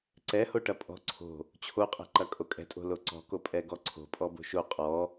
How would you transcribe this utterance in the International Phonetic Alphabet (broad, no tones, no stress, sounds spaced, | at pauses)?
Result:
ǀ ɛ h o ʈ ɐ pʼ ɔ̤ ǀʰ o̤ | t͡ɕʰ o qʼ ɛ̤ ǃ ɐ kʼ o kʼ ɛ̤ tʼ o̤ l o ǀ ɔ̤ k o pʼ ɛ ɡ ɔ ǀʰ o̤ pʼ ɔ b o̤ ʃ o qʼ ɔ